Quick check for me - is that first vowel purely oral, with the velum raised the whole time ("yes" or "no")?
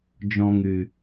no